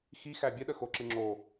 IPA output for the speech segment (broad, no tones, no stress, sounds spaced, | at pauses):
x i x æ bʲ ə ɗ ə x o ǁ ɨ ŋ͡ǁ o